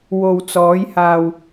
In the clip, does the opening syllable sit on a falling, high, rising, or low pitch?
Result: low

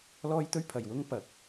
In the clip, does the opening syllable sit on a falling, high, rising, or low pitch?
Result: high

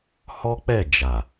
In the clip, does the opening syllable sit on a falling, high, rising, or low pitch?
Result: high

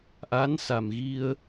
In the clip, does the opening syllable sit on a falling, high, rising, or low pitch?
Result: rising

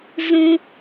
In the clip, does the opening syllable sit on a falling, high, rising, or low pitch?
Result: low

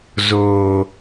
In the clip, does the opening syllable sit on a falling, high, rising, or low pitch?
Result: low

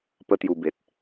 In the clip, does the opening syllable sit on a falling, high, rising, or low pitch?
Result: high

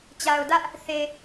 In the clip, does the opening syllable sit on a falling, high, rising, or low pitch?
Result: low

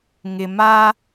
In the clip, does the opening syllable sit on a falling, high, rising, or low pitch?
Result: low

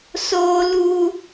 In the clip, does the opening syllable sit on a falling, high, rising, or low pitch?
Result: high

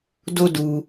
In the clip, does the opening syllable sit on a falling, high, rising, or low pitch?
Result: high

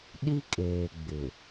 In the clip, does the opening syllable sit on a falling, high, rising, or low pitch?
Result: high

